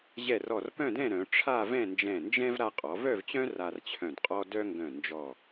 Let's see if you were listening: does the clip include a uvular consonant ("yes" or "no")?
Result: yes